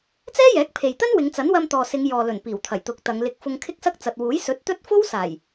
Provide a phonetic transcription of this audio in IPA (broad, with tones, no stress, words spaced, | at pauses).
t͡sɛː˥jɛː˨˥k̚pʰe˨jt̪ɐ˥n wɪ˨˧ŋt͡sɐ˨˥n wɐ˧mt̪ɔː˨sɪ˨˧ŋ jɔː˨lɵ˨˩n piː˨˩wt̪ʰɐ˨˩j t̪ʊ˨˥k̚t̪ɐ˨˧ŋ lɪ˨k̚ fʊ˧ŋkʰɪ˥k̚sɐ˥k̚ t͡sɐ˨t̚wuː˨˥j sɵ˨˥t̚t̪ɵ˥t̚ fo˥wsaː˨˩j